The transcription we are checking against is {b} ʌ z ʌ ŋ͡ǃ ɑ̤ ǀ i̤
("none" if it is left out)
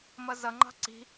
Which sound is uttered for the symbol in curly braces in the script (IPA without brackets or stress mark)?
m